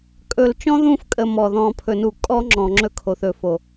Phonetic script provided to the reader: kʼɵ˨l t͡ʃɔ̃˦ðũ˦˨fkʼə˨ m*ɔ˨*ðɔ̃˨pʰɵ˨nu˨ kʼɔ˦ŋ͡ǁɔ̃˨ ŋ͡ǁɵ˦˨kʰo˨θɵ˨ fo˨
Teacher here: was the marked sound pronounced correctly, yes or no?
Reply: yes